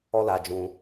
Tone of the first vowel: high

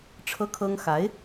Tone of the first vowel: high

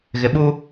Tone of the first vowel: low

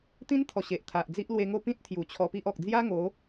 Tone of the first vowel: high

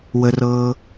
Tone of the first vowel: high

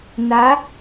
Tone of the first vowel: rising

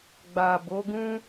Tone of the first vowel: low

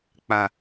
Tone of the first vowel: high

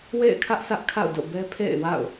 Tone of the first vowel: falling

